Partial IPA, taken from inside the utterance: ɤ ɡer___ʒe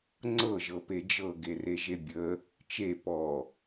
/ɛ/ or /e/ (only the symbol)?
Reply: e